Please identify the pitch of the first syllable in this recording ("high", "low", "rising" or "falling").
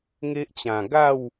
high